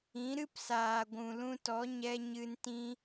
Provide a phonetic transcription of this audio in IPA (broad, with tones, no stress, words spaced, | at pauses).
ĩ˨˦ ɾɨ˦psaː˨ɡʷũ˨ lũ˧tɔ˨˦ ɲɛ˦ ɲɨ˧ntĩ˦